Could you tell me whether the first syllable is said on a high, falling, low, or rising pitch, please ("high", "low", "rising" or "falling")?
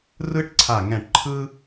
high